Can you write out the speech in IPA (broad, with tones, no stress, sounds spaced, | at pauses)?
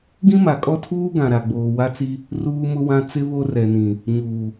ɡ ĩ˦ m a˨ kʼ ɔ˦ tʰ uː˦ ɡ ã˨ ɾ a˨ ɡ͡b oː˨ w a˦ t͡s i˦ | r uː˦ m ʊ˦ w ã˦ t͡s ɪ˦ β o˦ r ɛ˨ n ĩ˨ | ɲ uː˨